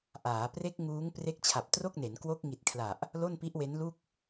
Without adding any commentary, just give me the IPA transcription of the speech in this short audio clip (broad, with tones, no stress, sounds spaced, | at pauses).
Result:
ʔ aː˩˦ p r e˦˥ k̚ ŋ uː˦˥ ŋ p r e˦˥ k̚ t͡ɕʰ a˨˩ p̚ t r o˥˩ k̚ n e˩˦ n k w o˦˥ k̚ ŋ i˨˩ t̚ kʰ l a˨˩ ʔ | l o˥˩ n p i˦˥ ʔ w e˦˥ n l u˥˩ k̚